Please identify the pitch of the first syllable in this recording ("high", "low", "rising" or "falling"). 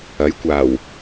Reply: rising